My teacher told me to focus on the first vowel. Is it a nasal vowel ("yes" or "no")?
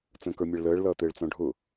yes